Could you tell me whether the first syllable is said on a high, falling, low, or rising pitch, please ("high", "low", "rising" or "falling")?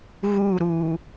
falling